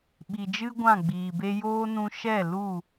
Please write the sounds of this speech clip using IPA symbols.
ɓ i˨ d͡ʒ ɨ˦ ɡʷ ã˦˨ ɡ͡b iː˨ b e˦ j oː˦ n ũ˧ ʃ ɛ˦˨ l u˦˨

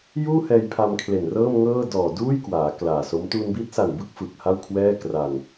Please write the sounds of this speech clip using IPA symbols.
j uː˥˩ h ɛː˧ j pʰ a˧ m kʰ l e˨˩ n r ɤː˥˩ m ŋ ɤː˥˩ d ɔː˨˩ d uː˥˩ j k w aː˩˦ k l aː˨˩ s o˦˥ m t uː˧ n b iː˦˥ t̚ s a˨˩ n b ɯ˦˥ k̚ f ɯ˨˩ k̚ h a˥˩ w kʰ w ɛː˥˩ k r a˧ n

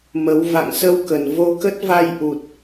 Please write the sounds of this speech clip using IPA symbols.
m ə˨˦ w v a̰˧˨ ŋ s ə˧ w k ə˨˩ n v o˧ k ə˦˥ t̚ v a˧ j ʔ u˨˩ t̚

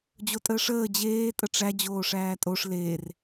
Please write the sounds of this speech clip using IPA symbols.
d͡ʑ o tʼ əː ʂ əː d͡ʑ eː tʼ ə ʈ͡ʂ æ d͡ʑ oː ʂ æː tʼ o ʂ l eː r

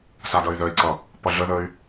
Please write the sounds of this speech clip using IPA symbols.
s a d ʌ y̯ ð œ i̯ ǀ ʌ | p ʌ ɮ ə ð ə y̯

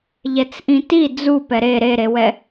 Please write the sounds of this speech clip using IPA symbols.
ʎ ɛ t͡s ʔ ĩ t i d͡z u p ɛ ɾ e ɾ e ɾ e w ɛ

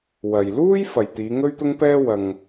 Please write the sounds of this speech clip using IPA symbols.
w ɐ˨ j l uː˥ j f ɐ˨ j t̪ iː˨˧ ŋ ɵ˥ ɥ t̪ ʊ˥ ŋ p ɛː˥ w ɐ˧ ŋ

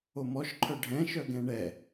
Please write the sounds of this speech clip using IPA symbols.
o m ɔ ʃ ǃʰ œ ɖʱ ɛ̃ ʃ œ ɡ ɛ̃ ɳ ɛ

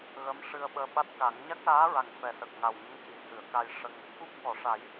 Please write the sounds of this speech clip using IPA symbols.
ɣ ə˧˥ m ʂ ɨ˧ ə̯ ɓ əː˧ ɓ a˦˥ t̚ k a˨˩˦ ŋ ɲ a˦˥ k̚ l aː˧˥ ɹ a˨˩ ŋ f ɛ˨˩ s ə˨˩ k̚ ŋ a˨˩ w ɲ ə˧˥ ŋ c i˨˩˨ h ɨ˨˩˨ ə̯ k a˧ j ʂ ə˧ ŋ | k u˦˥ p̚ k ɔ˨˩˨ ʂ a˨˩˦ j

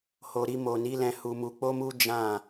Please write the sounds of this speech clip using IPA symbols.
h o˨ ɾ i˧ m o˨ n i˨˦ l ɛ̃˧ h u˧ m u˧ k͡p o˦ m u˦ d͡ʒ ã˦˨

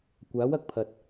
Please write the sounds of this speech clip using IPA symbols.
kʷ aː˨˥ w ɐ˧ k̚ pʰ ɐ˨ t̚

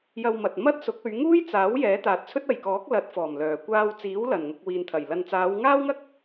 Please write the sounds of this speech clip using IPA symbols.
j ɐ˧ w m ɐ˨ t̚ m ɐ˥ t̚ s ʊ˨˥ k̚ ɵ˨˧ ɥ ŋ uː˥ j t͡s aː˨˥ w j ɛː˨˥ t̪ aː˨ t̚ t͡sʰ ɵ˥ t̚ ɐ˨ j k ɔː˨˥ k̚ l ɐ˨˥ t̚ f ɔː˨˩ m l œː˨˩ kʷ aː˧ w t͡s iː˨˥ w l ɐ˨˩ n ŋ ʊ˨ k̚ w iː˨ n t̪ʰ ɐ˨˩ j l ɐ˨ n t͡s aː˨˧ w ŋ aː˥ w ŋ ɐ˥ k̚

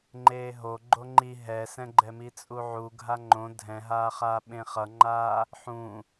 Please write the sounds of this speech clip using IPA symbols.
ŋ͡ǃ eː ɦ o ɡ͡ǃ o ŋ͡ǃ i ɦ ɛ s ɛ̃ ɡ͡ǃ ɛ m i t͡sʼ u ʕ u ɡʱ a ŋ͡ǃ õ dʱ ɛ̃ ɦ aː χ aː ɓ ẽ χ ʌ ŋ͡ǃ aː | ħ ũ

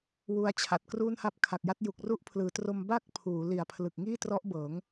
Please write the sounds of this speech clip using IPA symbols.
w u˧ a̯ t͡ɕʰ a˨˩ t̚ k r u˥˩ n h a˥˩ p̚ kʰ a˨˩ k̚ j a˦˥ t̚ j u˨˩ k̚ r u˦˥ ʔ pʰ l ɯː˩˦ t r o˧ m b a˥˩ k̚ pʰ uː˩˦ l i˨˩ a̯ pʰ l ɯ˨˩ k̚ ŋ iː˥˩ t r ɔ˦˥ ʔ b ɤː˩˦ ŋ

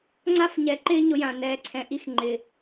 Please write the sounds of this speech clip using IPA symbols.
ŋ͡ǀ a˦ f ɲ ɛ˨ ǃ ɪː˦ ɲ ʊ˦ j ã˨ n ɛː˨ ǀʰ ɛ̃˨ ʔ i˦ x ŋ͡ǃ ɪ˨

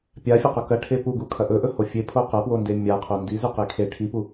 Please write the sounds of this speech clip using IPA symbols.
pʲ a fʲ ɐ q ɵ k ɐ ʈʰ e p u ɡ u kʰ ɐ ʔ ɵ ʔ ɵ h o fʲ e pʰ o q ɐ p w o n d e mʲ a qʰ o n d i z ʉ q e kʰ e ʈʰ i p u

